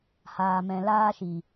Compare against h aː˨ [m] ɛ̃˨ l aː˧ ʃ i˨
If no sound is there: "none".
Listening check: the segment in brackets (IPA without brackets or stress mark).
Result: m